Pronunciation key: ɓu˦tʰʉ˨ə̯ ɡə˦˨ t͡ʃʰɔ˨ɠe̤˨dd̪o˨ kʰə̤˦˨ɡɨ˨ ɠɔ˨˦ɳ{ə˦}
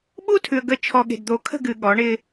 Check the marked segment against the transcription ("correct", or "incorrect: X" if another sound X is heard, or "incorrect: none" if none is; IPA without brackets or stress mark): incorrect: ɪ˦